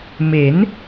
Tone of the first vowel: rising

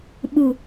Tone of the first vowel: low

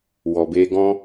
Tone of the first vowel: low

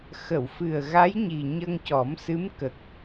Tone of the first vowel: low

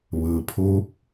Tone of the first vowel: low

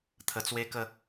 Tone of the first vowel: low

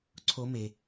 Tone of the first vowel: rising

